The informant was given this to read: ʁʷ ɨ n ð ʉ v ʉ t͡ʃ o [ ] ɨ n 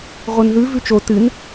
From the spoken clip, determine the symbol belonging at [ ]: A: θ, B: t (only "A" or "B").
B